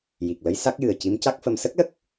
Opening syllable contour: low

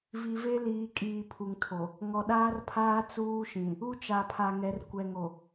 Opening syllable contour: low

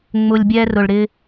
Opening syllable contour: low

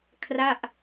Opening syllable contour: falling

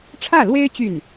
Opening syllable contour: falling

